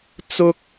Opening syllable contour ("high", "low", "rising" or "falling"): high